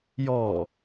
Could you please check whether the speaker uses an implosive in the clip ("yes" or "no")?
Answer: no